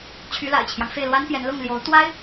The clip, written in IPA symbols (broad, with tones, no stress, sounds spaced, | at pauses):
t͡ɕʰ y˧˥ l a̰˨˩ ɪ̯ t͡ɕʰ j ɑ˦ ŋ f e˥˩ ɪ̯ l w a˥ n p j ɛ˧˥ n l ʊ˥˩ ŋ l j o˧˥ ʊ̯ t̪ w a˥ ɪ̯